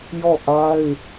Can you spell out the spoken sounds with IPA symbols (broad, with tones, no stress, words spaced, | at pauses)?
jɔ˦˨ʔa˦ɪ̯